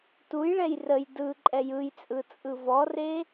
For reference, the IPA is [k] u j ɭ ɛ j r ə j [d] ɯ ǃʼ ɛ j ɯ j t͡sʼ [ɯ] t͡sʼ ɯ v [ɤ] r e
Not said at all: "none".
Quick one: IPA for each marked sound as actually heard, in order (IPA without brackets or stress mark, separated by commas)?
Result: t, d, ɯ, ɔ